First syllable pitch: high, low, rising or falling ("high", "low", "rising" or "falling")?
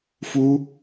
high